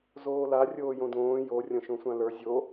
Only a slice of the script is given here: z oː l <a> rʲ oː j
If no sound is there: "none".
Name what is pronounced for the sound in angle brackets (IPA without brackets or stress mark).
a